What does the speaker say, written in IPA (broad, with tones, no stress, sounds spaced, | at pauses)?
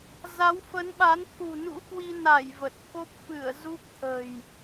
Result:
z a˨˦ w f ə˨˦ n ɓ a˨˦ n t̪ʰ ṳ˨˩ n ṵ˧˥ k w i˧ n a˧˩ j v ə˨˩ t̚ k o˦˥ p̚ f ɨ˧˩ ə̯ z u˦˥ k̚ t̪ʰ ə̤˨˩ j